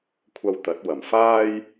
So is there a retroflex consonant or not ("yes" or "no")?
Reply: no